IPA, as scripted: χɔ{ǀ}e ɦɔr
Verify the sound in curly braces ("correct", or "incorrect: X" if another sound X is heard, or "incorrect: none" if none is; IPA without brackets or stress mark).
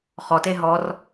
incorrect: t